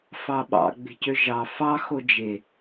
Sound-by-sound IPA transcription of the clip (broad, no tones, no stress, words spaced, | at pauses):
fɑɓɑ̰ɡ͡be̤cø ʒɑ fɑ xod͡ʒe